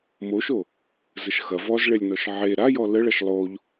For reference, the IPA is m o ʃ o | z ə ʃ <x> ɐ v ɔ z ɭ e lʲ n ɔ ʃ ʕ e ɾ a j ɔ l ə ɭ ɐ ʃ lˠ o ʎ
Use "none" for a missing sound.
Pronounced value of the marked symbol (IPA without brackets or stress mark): x